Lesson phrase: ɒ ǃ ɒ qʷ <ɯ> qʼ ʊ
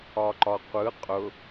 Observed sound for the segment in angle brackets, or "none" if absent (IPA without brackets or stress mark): ɯ